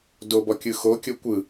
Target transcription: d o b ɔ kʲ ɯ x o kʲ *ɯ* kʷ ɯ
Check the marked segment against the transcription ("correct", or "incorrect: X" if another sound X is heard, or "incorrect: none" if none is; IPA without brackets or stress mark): incorrect: ɤ